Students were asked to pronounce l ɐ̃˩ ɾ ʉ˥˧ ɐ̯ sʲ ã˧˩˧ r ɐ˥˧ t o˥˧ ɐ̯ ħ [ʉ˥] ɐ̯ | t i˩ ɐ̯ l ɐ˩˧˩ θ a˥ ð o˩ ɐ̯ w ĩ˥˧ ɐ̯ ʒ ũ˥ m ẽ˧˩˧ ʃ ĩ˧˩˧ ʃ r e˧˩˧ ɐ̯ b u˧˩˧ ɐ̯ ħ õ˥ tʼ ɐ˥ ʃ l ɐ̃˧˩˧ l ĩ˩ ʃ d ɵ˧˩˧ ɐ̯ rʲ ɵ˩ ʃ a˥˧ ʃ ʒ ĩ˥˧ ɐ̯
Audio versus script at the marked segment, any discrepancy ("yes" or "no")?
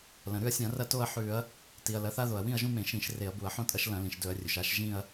yes